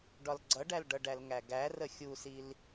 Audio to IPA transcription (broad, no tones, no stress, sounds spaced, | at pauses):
ɖ ɒ l ɡ͡ǀ ʌ ɖ æ l ɖ ʌ ɖ æ l ŋ æ ɡ æ r ə xʲ u s i l